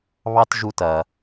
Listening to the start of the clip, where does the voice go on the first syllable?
high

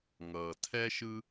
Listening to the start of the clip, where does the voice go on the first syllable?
low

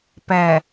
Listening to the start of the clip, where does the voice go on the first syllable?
low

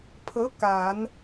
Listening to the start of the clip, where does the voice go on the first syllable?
rising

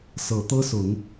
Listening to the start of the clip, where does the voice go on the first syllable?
low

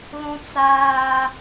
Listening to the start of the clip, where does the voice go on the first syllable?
high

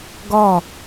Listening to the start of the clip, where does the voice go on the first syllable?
falling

